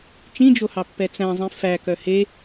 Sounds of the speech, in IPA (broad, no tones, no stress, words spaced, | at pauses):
t͡ʃĩd͡ʒohɑpːɛ t͡sæ̃zˤĩ fækœ he